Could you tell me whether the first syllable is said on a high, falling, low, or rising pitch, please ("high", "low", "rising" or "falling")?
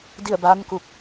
falling